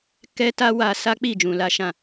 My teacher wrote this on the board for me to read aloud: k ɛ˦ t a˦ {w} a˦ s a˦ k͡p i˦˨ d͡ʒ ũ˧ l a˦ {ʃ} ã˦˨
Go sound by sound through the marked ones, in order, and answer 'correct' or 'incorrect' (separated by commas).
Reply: correct, correct